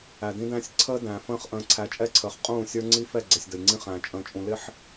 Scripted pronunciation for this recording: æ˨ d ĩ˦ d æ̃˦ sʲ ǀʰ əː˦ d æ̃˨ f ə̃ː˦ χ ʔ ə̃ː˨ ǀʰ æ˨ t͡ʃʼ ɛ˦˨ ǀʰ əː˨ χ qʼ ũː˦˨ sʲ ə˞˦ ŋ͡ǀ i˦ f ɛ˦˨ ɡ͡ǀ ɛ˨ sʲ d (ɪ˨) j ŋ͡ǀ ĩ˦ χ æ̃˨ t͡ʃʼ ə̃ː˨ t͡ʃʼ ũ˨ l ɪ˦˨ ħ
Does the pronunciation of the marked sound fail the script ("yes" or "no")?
yes